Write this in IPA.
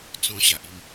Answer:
t͡s ɔ̃˧ ɕ a˨ ʔ i˥˧ m

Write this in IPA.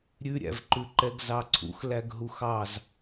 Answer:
ɾʲ ʉ ɾʲ æ̰ v ǃ ʉ ǃ ɛ ɡ z ɑ ǀʰ ṵ x l æ ɡ ɦ u x ɑ z

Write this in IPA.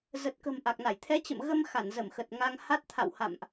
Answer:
z ə˨˩ t̚ k ə̤˨˩ m ʔ a˨˩ k̚ n a˧˩ j t̪ʰ ɛ˨˦ t͡ɕ ə̰˧˨ m ɣ ə˧ m x a˧˩ n z ə˧˩ m x ə˨˩ t̚ ŋ a˧ ŋ h a˦˥ t̚ t̪ʰ a̰˧˨ w h a̰˧˨ m ʔ

